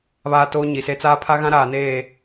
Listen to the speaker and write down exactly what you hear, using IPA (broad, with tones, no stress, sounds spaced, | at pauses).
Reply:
β aː˦ t oː˦ ɲ i˨ s e˦ t͡s aː˦ pʰ a˦ ɣ ã˦ ɾ aː˨ n eː˦˨